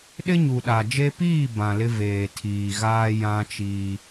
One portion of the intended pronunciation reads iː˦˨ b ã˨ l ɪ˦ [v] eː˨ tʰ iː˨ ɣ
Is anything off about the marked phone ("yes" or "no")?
no